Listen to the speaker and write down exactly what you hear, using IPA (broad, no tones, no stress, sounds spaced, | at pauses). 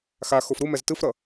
x a x o f ɾ u m ɛ z t ɯ f ɾ ʌ